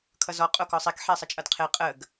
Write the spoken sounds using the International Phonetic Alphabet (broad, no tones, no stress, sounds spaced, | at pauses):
kʰ ʌ z ɔ qʼ o k ɔ sˤ i k ħ e sˤ ə t͡ʃʼ ʌ d qʰ e qʼ ə ɡ